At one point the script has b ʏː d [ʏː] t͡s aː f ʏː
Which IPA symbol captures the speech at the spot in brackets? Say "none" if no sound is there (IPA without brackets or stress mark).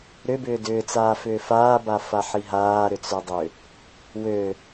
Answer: ʏː